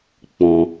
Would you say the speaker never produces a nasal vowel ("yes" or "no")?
no